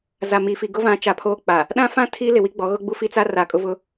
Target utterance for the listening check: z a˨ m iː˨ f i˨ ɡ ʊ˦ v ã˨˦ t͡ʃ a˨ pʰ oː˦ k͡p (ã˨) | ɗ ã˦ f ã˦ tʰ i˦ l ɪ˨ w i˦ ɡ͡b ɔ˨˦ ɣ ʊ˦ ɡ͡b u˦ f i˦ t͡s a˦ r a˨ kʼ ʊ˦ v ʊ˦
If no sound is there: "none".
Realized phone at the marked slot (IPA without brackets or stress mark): a˨